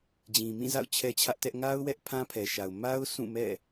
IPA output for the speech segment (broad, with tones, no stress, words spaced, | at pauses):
d͡ʑĩ˨mĩ˦˨za̰˦˨ʊ̯ t͡ɕʰɛ˦t͡ɕʰä˦ʔtɛ˦ʔ ŋa˦ʊ̯ wɛ˦ʔpʰã˦pʰɛ˨ʃa˨ʊ̯ ma˦ʊ̯ sʰũ˦˨mɛ̰˦˨